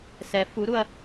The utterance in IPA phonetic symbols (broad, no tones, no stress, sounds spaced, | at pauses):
s ɛ f u ɾ u ɐ̯